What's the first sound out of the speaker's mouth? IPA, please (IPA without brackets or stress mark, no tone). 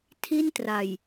tʰ